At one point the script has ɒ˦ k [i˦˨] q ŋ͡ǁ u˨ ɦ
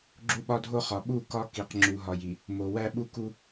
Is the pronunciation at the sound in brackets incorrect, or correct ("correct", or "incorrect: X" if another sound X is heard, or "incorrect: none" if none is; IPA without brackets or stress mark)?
incorrect: i˨